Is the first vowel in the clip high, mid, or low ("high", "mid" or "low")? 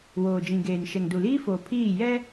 mid